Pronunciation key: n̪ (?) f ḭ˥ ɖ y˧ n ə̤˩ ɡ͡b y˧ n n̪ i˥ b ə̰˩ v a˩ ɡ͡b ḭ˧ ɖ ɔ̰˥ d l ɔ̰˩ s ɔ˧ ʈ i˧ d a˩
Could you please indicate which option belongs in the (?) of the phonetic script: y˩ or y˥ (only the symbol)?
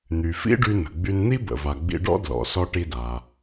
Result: y˩